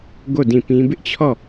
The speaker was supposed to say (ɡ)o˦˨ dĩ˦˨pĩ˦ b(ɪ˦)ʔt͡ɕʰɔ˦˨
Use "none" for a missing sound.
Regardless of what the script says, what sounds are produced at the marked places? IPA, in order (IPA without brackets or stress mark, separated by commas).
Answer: ɡ, ɪ˦